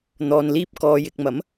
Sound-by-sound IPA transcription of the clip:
n̪ɔː˨nliː˧p̚ kɔː˨jɪ˨k̚mɐ˨˥m

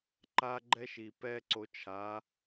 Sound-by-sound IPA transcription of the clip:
ǃa˦ɡ͡ǃɛ˦ʃi˨ pɛ˦ ǀo˧ t͡ʃʰa˨˦

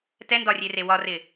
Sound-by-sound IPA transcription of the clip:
tɛndɒrʲere wɒrɪ

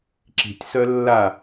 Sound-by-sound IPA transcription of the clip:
ǁi̤tʲsœ lːa

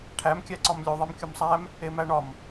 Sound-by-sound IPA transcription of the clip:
ʈʰæmkʲæǀɒm lʲoðˤem kʲumsˤæm | emæɳɒm

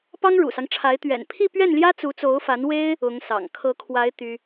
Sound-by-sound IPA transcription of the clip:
pɑ˥ŋɻṵ˨˩sɑ˦ŋʈ͡ʂʰa˧˥ɪ̯ t̪ɥɛ̰˨˩npʰi˥˧pɥɛ˥˩nljä˥ t͡su˧˥t͡so˧˥ʊ̯fa˧˥nwe˥ɪ̯ | ʊ˧˥ŋsɑ̰˨˩ŋ kʰɤ˧˥kʰwa˧˥ɪ̯ t̪y˥

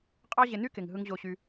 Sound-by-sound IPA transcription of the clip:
qʼɑ˦ʑe˧ny˦ke˨ŋ ɦɯ˦ŋʑo˦ɕy˦

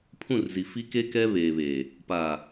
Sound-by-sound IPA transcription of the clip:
pʰũ˦˨rzi˨ fi˦ke˦ kɛ˦ βeː˨βe˨ | pa˨

